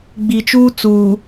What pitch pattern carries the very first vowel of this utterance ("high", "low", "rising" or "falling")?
low